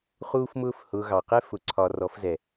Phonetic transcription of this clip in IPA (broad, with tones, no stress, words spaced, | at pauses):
χuː˦fmʊː˦f hʊː˨ ɣɑ˨qɛ˦ fʊ˨ǀʰɒ˨ rɔ˨˦fzɛ˨